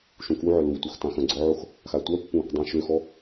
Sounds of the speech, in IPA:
ʃũkuʕœ lutʷœx tãxœ̃ɡ͡ǀɔʕox | xatʷœpːũ | dˤũʃøxɔ

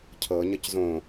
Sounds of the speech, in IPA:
cʰɤ ɲəczõ

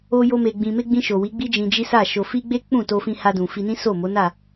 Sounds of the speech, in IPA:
o˧jo˧ me˨ɡ͡bĩ˨me˧ ɡ͡bĩ˧ʃo˨ wi˨˦ɡ͡bi˦ d͡ʒĩ˧d͡ʒi˦sa˦˨ ʃo˨fi˧ ɡ͡be˦k͡pũ˦˨ to˧fĩ˧ha˧dũ˨ fi˧nĩ˦ so˦˨mo˨˦na˦˨

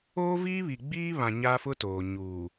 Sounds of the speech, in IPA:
oː˦viː˦βi˨ɡ͡biː˦ βã˨ ɲa˦fʊ˦toː˨ ɲuː˨

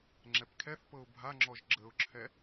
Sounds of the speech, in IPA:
ŋ͡ǁɛpkʰɛθpɤʊ̯ bʱaŋ͡ǁɔʒ ɡ͡ǁəʊ̯ǁʰɛ

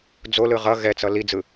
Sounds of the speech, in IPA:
d͡zolɯ ʁʌ ɣɛt͡sʌ lid͡zɯ

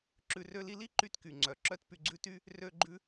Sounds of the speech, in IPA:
ǁʉ˧rø˦li˦ li˦ǃy˧t ky˨ŋ͡ǀœ˨ ǁœ˧t py˧ɡ͡ǀʉ˦ty˦ | rø˧ɡ͡ǃʉ˧

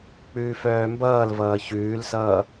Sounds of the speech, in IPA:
k͡pʉːfœːmbʌːlvʌː çʉːlsʌː

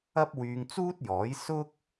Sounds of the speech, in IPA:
ɐ˥p̚ wyː˧ŋt͡suː˥t̚jɔː˨˥j sʊ˥k̚

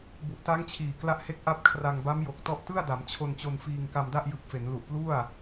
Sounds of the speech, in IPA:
bu˨˩ʔta˦˥ŋ t͡ɕʰiː˨˩ kla˦˥ʔhe˦˥k̚ ʔa˥˩p̚ kʰra˧ŋba˦˥mjo˨˩k̚ tɔ˥˩ʔ tɯ˥˩a̯da˩˦m t͡ɕʰo˧nt͡ɕo˧nfiː˧ŋ ka˧mda˥˩ʔjɯ˨˩k̚ fe˩˦nlu˨˩ʔplu˥˩a̯

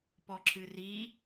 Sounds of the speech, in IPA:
pɔǁɨri

